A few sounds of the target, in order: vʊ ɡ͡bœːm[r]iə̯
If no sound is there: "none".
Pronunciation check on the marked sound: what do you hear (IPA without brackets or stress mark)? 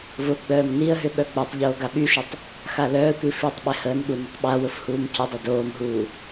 n